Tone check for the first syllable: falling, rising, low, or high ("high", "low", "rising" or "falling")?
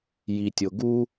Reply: low